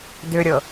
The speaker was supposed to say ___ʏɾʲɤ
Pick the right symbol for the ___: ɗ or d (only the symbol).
d